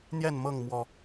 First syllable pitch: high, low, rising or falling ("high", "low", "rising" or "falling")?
falling